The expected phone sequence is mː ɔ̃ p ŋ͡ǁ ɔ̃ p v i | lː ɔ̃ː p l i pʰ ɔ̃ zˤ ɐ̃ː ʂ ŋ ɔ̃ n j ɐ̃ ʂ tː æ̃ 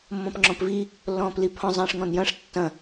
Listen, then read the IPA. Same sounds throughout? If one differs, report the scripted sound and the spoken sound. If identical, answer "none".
æ̃ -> ɐ̃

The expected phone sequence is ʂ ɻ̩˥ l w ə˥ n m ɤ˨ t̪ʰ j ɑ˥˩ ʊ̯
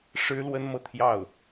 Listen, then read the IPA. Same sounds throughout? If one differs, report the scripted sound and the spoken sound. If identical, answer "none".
none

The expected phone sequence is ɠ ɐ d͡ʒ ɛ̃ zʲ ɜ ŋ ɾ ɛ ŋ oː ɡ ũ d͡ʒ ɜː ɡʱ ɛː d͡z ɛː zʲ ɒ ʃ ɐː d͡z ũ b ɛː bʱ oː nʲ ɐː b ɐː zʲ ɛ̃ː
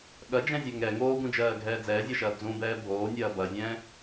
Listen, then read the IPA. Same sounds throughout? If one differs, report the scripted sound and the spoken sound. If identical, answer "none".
none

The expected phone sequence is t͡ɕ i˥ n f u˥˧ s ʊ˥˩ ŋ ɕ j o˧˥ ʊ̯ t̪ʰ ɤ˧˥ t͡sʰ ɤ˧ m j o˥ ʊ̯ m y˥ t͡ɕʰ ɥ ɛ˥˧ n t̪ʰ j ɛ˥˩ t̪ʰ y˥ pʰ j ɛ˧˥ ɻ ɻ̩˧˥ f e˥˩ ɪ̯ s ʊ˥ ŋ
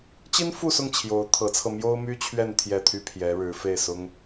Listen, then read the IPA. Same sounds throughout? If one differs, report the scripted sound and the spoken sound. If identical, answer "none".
ɕ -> t͡ɕʰ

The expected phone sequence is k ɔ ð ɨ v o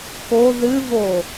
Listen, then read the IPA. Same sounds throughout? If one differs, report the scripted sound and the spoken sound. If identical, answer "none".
ɔ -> o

